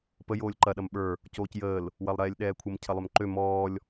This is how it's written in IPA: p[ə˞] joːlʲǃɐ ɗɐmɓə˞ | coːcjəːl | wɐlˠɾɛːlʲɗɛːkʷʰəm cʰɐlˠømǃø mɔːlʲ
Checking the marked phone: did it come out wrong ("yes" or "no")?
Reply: yes